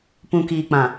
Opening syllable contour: low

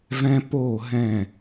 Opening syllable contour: high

